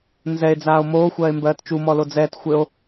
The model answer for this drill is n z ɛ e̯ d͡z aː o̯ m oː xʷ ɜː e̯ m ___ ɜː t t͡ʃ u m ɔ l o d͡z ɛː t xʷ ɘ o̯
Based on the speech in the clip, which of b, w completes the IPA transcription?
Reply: b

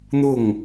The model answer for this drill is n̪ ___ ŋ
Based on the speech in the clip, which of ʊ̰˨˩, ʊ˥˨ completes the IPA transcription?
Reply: ʊ˥˨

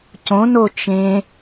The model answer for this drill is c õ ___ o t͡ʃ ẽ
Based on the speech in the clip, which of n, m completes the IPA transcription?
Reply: n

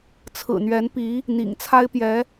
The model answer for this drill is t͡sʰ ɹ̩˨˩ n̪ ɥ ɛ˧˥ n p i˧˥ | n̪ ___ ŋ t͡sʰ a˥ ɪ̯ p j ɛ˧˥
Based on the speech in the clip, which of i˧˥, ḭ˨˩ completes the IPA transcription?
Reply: ḭ˨˩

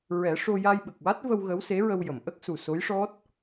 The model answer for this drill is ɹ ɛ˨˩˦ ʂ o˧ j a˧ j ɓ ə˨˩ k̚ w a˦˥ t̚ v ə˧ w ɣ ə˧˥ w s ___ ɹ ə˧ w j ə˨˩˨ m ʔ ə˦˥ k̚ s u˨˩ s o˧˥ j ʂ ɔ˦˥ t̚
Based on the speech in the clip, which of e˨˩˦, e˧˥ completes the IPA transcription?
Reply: e˧˥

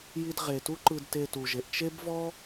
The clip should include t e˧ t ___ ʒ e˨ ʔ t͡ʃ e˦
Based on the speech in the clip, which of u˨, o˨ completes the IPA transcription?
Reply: u˨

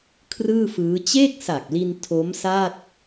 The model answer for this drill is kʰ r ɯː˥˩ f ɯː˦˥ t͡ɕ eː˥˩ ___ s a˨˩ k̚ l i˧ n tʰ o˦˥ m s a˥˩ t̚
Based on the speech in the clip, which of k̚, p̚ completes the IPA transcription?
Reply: k̚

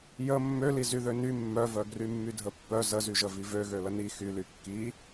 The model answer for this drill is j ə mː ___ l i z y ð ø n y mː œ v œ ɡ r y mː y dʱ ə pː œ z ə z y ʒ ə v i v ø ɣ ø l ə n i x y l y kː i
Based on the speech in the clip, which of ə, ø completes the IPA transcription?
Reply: ø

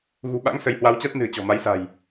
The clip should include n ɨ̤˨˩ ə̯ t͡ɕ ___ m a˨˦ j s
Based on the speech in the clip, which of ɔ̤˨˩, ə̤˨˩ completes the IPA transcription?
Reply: ɔ̤˨˩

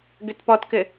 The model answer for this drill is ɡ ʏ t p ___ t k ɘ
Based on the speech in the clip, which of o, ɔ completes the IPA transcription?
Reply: ɔ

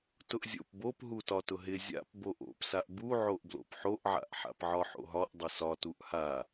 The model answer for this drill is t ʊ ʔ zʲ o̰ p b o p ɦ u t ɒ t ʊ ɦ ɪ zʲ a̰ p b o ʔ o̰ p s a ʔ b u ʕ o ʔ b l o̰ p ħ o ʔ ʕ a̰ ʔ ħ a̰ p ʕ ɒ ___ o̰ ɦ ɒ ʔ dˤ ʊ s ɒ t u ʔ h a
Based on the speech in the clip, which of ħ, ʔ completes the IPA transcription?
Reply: ħ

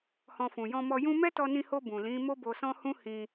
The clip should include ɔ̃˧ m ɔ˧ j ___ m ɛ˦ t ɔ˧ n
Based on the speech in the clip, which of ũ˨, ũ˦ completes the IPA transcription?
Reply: ũ˦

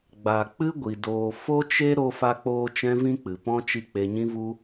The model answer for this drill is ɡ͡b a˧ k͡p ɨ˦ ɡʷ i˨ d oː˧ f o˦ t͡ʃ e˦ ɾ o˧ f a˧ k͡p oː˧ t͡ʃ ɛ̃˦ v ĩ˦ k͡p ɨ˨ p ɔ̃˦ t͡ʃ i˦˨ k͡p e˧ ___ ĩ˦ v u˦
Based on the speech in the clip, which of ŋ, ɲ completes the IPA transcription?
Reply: ɲ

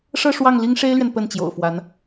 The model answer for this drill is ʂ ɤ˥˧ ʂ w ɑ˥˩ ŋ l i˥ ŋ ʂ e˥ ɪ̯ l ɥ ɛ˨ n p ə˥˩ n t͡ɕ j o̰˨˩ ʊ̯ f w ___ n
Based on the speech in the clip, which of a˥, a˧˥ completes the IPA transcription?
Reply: a˧˥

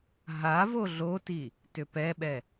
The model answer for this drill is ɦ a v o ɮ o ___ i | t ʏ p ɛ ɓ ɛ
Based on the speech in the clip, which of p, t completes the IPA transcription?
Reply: t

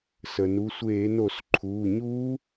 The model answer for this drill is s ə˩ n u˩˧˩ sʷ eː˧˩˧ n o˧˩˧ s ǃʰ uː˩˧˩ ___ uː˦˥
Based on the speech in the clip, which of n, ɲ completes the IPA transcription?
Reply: ɲ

